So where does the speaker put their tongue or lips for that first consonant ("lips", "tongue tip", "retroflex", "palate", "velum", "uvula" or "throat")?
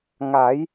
velum